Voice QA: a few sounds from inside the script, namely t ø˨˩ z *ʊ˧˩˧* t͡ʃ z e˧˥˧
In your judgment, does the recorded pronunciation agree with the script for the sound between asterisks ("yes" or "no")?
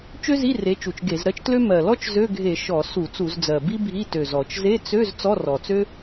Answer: no